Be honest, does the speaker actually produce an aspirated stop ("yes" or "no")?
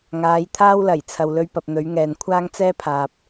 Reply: yes